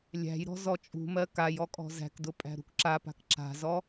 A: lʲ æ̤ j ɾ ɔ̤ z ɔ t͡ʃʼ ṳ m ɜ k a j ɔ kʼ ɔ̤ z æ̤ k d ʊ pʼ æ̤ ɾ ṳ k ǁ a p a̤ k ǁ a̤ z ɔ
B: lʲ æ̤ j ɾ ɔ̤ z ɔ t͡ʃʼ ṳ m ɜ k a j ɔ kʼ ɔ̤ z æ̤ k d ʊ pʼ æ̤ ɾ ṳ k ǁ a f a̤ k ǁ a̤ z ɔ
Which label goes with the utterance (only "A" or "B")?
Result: A